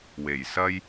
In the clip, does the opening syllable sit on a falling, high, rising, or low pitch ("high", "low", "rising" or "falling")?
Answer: low